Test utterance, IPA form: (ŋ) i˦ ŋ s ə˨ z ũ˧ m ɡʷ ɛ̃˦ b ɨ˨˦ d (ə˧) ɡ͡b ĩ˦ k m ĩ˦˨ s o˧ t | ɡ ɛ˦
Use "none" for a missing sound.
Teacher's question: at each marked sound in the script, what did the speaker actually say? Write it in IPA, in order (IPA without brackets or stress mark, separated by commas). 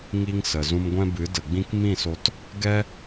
ŋ, ə˨